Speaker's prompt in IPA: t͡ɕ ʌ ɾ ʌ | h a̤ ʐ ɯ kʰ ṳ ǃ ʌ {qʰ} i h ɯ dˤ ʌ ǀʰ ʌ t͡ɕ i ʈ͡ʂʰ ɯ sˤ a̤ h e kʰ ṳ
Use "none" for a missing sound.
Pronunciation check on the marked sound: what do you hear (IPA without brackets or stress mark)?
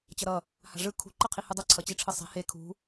qʰ